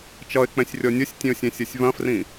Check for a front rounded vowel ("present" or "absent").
absent